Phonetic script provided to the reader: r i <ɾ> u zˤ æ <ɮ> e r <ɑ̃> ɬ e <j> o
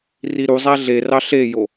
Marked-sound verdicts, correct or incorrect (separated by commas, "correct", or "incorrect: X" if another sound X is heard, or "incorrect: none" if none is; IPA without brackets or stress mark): correct, correct, incorrect: ɑ, correct